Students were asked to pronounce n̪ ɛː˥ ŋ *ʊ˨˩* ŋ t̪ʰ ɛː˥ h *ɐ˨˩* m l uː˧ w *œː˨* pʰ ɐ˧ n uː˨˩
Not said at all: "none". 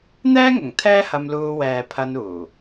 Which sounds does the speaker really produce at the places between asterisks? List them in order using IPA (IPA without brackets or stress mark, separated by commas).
ʊ˨˩, ɐ˧, ɛː˨